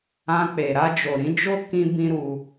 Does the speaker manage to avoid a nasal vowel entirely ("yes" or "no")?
no